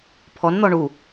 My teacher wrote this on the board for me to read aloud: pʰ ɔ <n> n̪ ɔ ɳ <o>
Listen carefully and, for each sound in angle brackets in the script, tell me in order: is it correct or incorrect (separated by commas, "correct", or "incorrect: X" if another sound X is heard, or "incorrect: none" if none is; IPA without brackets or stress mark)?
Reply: correct, incorrect: u